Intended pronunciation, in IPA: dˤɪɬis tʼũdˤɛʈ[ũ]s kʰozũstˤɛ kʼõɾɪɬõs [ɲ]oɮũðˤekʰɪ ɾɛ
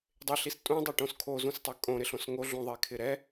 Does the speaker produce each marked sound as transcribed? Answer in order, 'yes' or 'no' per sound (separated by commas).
no, no